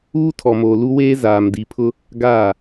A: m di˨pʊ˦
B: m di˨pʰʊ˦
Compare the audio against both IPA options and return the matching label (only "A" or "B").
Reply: B